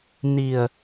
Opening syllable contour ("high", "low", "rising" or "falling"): low